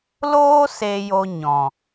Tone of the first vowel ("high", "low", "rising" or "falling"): high